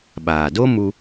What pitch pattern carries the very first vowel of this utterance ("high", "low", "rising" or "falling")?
low